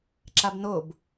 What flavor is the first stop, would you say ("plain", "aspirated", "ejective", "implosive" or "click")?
click